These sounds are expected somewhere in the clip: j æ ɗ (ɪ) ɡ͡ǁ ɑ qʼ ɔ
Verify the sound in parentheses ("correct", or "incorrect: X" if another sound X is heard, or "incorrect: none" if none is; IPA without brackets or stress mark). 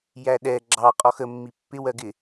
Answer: incorrect: ɛ